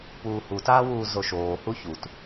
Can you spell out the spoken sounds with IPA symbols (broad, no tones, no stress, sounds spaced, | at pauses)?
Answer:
p uː h u t aː w uː z o ʃ oː h u ç u t